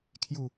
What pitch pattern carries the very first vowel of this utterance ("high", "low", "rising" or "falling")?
low